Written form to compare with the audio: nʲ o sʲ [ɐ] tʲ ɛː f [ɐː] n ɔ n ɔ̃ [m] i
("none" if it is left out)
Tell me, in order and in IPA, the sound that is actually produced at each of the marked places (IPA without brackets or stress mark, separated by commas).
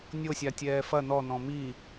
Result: a, ɐ, m